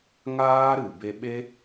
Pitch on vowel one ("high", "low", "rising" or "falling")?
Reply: high